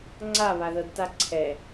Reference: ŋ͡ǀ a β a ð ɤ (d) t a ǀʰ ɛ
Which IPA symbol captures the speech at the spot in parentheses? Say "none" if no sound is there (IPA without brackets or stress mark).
d